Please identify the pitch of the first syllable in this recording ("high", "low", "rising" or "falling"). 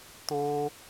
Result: high